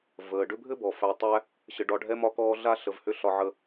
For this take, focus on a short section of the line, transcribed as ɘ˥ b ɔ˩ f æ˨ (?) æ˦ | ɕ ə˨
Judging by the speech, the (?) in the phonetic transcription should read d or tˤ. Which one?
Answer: tˤ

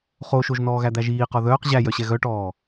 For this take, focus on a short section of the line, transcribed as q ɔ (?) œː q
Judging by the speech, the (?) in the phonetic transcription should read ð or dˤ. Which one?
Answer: ð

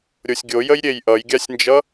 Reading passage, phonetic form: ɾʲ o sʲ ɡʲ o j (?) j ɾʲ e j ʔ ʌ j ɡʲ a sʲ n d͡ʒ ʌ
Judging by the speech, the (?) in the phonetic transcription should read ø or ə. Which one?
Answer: ə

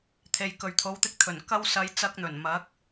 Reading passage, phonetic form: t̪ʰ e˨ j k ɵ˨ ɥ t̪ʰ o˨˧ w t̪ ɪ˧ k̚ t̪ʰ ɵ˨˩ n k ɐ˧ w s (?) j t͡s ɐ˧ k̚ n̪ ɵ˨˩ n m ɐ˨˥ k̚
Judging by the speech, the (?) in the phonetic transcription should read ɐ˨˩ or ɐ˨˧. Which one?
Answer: ɐ˨˧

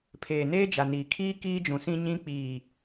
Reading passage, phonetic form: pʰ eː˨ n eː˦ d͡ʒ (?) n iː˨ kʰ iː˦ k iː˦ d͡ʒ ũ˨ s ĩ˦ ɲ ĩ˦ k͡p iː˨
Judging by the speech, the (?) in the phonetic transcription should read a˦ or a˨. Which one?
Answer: a˨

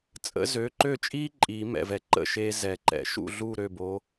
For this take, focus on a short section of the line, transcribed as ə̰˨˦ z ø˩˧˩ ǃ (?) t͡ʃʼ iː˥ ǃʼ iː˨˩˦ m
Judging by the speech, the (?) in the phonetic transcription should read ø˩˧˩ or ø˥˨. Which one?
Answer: ø˥˨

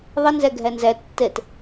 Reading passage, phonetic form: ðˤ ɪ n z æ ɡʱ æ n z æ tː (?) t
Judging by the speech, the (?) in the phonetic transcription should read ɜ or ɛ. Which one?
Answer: ɛ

